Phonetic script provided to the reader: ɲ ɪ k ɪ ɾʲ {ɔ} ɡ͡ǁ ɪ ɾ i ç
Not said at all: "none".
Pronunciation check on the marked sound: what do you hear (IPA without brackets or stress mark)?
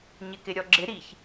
ɔ